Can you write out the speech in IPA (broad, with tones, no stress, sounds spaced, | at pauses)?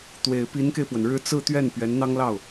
t̪ w e˨˩ ɪ̯ p i˧˥ n k e˧ ɪ̯ p w ə˩ n ɻ ɻ̩˧˥ t͡s ɹ̩˥˧ t̪ ɥ ɛ˥˩ n p ɥ ɛ˧˥ n n̪ ɑ˥ ŋ l ɑ˥˩ ʊ̯